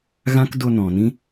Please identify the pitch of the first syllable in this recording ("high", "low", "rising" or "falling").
high